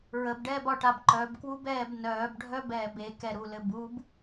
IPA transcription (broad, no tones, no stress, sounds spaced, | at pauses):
ɹ ə b ɖ ɛː b ɒ ʈ a b ǃ œ b k w u b ɛː b n œː b ɖʱ œ b ɛː b e k ɛ ɾ u l ɘ b u b